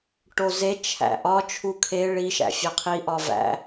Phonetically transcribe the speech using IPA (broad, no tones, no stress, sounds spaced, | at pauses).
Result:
ʈ o z e t͡ʃʰ æ̰ ʔ ɒ t͡ʃʰ u kʰ e ɭ i ʃ æ̰ fʲ æ qʰ i ʔ ɒ v æ̰